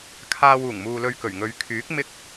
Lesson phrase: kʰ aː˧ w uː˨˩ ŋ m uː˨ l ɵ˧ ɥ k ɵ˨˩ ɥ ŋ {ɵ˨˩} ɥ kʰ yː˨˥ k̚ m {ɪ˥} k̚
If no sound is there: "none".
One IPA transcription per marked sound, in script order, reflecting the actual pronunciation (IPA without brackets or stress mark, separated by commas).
ɵ˨˧, ɪ˥